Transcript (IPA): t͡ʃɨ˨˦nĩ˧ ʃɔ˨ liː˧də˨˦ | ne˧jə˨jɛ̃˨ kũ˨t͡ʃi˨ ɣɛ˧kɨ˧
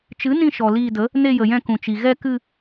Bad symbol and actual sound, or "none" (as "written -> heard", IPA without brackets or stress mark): ɛ̃˨ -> ɛ̃˧